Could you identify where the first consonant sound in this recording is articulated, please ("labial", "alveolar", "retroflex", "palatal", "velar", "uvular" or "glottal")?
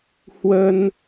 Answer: glottal